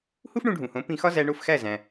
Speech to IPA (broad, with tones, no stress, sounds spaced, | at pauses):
h u˥ f ɳ ũ˧ ɖʱ ũ˩ h õ˩˥ p ĩ˧ x ɒ˥ z æ˧ ɳ o˥˩ f x æ˥˩ z æ̃˩